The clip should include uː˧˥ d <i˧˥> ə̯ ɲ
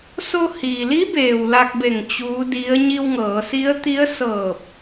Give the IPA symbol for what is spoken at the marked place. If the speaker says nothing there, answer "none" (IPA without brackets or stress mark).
i˧˥